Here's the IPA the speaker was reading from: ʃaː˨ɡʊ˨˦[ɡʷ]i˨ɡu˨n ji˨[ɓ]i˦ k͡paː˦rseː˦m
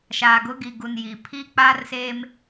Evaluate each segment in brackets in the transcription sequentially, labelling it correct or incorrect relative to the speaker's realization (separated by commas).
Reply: incorrect, incorrect